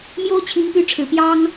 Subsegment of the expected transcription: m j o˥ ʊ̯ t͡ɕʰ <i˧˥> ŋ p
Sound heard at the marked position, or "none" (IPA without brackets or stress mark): i˧˥